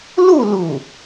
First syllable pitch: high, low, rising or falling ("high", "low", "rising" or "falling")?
falling